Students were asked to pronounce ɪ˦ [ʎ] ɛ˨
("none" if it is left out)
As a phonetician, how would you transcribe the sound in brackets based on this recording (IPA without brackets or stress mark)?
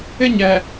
ɲ